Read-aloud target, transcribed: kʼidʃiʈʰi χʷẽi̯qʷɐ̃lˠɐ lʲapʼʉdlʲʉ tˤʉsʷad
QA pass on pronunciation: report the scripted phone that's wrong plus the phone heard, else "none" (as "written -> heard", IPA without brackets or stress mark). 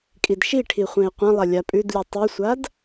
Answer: none